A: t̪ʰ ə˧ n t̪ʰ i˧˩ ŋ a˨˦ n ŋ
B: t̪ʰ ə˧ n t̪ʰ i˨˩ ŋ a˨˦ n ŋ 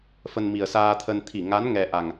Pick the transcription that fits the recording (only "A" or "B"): A